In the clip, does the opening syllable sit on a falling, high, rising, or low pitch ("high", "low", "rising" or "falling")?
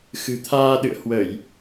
low